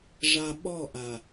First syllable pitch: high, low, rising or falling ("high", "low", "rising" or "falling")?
low